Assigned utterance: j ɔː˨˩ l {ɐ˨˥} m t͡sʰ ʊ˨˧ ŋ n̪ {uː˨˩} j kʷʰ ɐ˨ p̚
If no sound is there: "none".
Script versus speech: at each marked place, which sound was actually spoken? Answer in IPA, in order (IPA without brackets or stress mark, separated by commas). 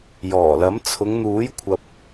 ɐ˨˥, uː˨˥